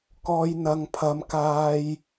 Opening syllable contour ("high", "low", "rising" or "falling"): low